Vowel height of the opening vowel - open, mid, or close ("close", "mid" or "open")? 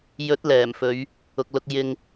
mid